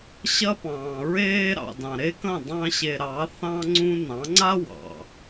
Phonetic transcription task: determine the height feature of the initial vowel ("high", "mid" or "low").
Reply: low